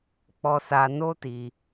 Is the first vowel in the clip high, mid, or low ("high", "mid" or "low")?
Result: mid